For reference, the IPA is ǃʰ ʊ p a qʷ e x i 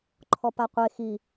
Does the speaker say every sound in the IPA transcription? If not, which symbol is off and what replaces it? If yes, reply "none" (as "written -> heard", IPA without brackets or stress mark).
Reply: ʊ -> ɔ